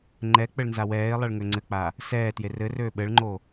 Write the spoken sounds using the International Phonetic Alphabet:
ŋ͡ǃɛ k͡pɘɭnzawɛːɪ̯lˠɛɭ ŋøŋ͡ǀɘk͡pa | sɛːtje rɘrøː ɓɘɭŋ͡ǃo

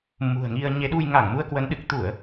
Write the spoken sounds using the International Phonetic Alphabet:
mṳ˨˩ə̯ŋi˧ə̯ ɲe˨˦ɗu˧j ŋa˧˩ŋmu˧ə̯kwə˨˦n ɗɨ˨˩k̚ t̪u˧˩˨ə̯

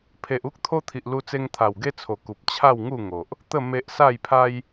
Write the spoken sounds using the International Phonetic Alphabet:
pʰe˨ʔu˦k̚ t̪ʰo˦t̪ʰi˨ʔlu˧t͡se˧ŋ t̪ʰa˨˩wɡe˦t͡sʰo˨˩ ku˨p̚ t͡ɕʰa˥˧wŋu˥˧ŋo˨ʔ | t̪ə˥˧ me˦ʔ sa˥˧jpʰa˦j

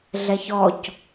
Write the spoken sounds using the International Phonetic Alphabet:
ɮɛçɔc

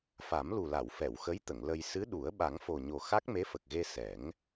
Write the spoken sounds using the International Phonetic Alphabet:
fa˨˩˦mlu˨˩la˨˩˨wfɛ˨˩˨w xə˧˥jt̪ə˨˩˨ŋ lə˧j sɨ˧˥ɗu˨˩˦ə̯ ɓa˨˩˦ŋfo˨˩ɲo˨˩ xa˦˥k̚me˧˥fə˨˩k̚ɣe˧ sɛ˨˩˦ŋ

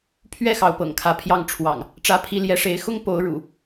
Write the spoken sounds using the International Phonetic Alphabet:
pʰɥɛ˥˨xɑ˩ʊ̯ pɤ̰˨˩ŋkʰä˨˦pʰjɑ˥˨ŋ ʈ͡ʂʰwɑ̰˨˩ŋ | ʈ͡ʂä˨˦ pʰi˨˦ljɛ˨˦ʂe˨˦ɪ̯ xʊ˦ŋ po˨˦ʊ̯ɻṵ˨˩

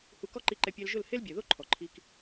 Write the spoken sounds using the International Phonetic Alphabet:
hu˧ kɔ˦ǃi˧ǃɛ˧ pʲɛ˧lʒʊ˦˨l he˦lbʲɛ˨ðo˦ ǃʰɔ˨ǃʰi˦k

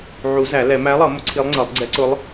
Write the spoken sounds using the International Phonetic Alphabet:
ʕu˨˩˦ zæ˨˩˦lɛ˨˩˦ mæ˧˥lˠʌ˨˩˦ mʊ˧˥ǀʰi˧˥lˠŋ͡ǀʌ˨˩˦lˠ ɡ͡ǀɛ˧˥ǀʊ˧˥lˠ

